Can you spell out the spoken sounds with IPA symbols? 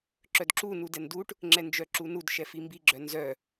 ǁ œ d ǁ u n u d ɛ n d u ʈ | ŋ͡ǁ ɛ n d͡ʒ œ ǁ u n u d ʃ ɛ f i m b i ɡ͡ǁ œ n z œ

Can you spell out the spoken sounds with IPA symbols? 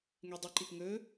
ŋ e dˤ ɨ ǃ i p ŋ ɵ

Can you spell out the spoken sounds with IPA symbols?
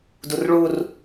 d u r ɭ u r

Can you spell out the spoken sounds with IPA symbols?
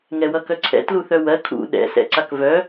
ŋ ɛ w ʌ k œ ǀʰ ɛ̰ t l u θ œ w ɜ kʰ ṵ ɗ ɛ̰ s ɛ̰ ǀ a k v œ

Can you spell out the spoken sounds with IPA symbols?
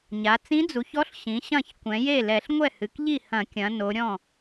ɲ a˩˧ t͡s ĩ˧˥ d͡z u˩˧ ç ɔ˧˥ ɬ ɕ ĩ˩˧ ɕ ɐ̃˥˩ ç kʷ ɛ̃˩˧ j e˥˩ l ɛ˧˩˧ ɬ ŋʷ ɛ˥˩ h ɨ˩˧ k ʎ i˥˩ h ɐ̃˧˩˧ kʲ ɐ̃˩˧ n o˩˧ ɾʲ ɔ̃˥˩

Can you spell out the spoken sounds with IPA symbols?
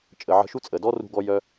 t͡ʃʼ ə˨ ʕ ə̤˧ ʃ u˦ t͡sʼ ə˨ d ɔ˦ r ṳ˧ ɡ ɔ˧ j œ˧

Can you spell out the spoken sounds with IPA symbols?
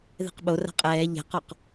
ð ɛ̤ q ɓ o r a̤ qʼ ɛː ʎ ɛ̤ q ɔ q

